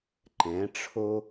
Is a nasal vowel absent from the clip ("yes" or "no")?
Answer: no